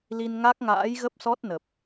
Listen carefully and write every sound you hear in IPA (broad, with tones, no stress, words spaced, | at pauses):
li˧nŋa˦˥k̚ŋa̰ː˧˥jɣə˦˥p̚ sɔ˦˥t̚nə˨˩p̚